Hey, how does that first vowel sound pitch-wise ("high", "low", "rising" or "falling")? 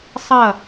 falling